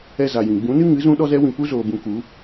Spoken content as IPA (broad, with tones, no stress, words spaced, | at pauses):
ɛ˧za˨jĩ˨ ɡ͡bũ˨˦nɨ˦ ŋɨ˨˦zũ˦ ɗɔ˦zɛ˦ wĩ˨pu˦zoː˨bũ˧ ku˨˦